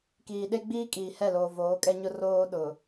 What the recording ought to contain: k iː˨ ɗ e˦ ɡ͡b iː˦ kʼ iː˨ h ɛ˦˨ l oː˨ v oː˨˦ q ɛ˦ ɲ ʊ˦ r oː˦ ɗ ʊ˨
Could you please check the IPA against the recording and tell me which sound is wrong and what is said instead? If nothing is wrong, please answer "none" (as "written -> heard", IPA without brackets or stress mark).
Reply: q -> kʼ